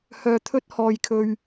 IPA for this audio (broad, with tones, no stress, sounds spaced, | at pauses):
h œː˧ t̪ʰ ɵ˥ t̚ h ɔː˧ j kʰ ɵ˧ ɥ